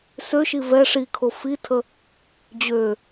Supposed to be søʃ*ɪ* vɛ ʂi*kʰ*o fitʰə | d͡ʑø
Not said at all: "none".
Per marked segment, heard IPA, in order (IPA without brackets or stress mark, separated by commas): i, kʰ